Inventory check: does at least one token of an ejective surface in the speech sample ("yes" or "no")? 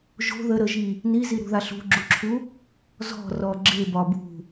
no